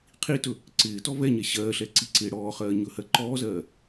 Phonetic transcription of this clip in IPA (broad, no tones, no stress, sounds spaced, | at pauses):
qʰ i t ɵ | ǀ ɪː t ɔ v ɛ ɲ ɛ ɕ ɜː ɬ ɛ ǀ i ǀ ɪː ɽ ɔː χ ɜː ɲ ɵ h ɜ ǃ ɔː z ɜː